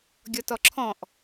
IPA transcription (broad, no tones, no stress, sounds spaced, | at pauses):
ɡʲ ɔ t ɔ ǁʰ ɔ̃ ʔ